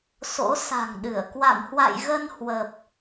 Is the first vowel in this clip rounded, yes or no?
yes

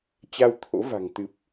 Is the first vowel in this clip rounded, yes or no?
no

